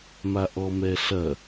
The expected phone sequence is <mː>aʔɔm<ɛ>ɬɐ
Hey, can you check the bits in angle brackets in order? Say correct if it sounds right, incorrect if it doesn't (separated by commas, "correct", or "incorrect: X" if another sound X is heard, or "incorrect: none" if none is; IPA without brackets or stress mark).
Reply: incorrect: m, correct